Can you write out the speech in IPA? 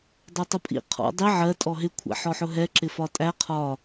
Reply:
dˤɛtˤʊpʼḭ qʰɔ̰ dˤi ʕɜ tʼɔɦɪ kʷʰæ̰ħɔħʊɦɛ ǁɪfɒtʼæ qʰɒ

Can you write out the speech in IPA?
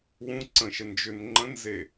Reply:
wũ ǀə̃ʃə nd͡ʒʏn ŋ͡ǃə̃nze

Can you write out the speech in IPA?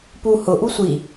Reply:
pu hʊʔu sʷi

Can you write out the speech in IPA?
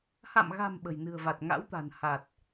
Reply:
ha̰˧˨mɣa̤˨˩m ɓə̤˨˩jnɨ̤˨˩ə̯va˨˩t̚ ŋa̰˧˥wt̪a̤˨˩n ha˨˩t̚

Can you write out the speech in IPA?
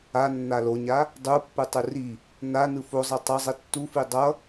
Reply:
a nːaloɲa | dˤupːɯ tˤɯri | na nɯfozˤi tˤʌzˤi tːufi dˤʌ

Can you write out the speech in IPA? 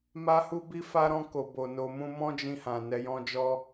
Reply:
ma˦hu˦bi˦fa˦ ɾɔ̃˦ ko˧bo˧no˧mũ˦ mɔ̃˦d͡ʒĩ˧hã˨ nɛ˧jɔ̃˦d͡ʒɔ˦

